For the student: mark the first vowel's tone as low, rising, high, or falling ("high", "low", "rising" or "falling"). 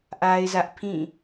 high